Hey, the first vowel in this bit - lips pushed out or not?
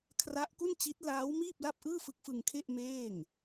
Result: no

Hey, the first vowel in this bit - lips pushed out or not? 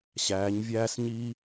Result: no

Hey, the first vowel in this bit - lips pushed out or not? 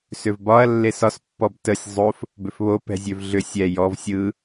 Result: yes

